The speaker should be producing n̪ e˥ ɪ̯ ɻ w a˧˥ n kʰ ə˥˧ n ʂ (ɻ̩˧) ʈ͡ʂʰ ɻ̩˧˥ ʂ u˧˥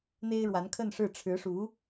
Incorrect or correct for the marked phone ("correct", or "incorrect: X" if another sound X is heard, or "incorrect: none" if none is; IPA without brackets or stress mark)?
incorrect: ɻ̩˥˩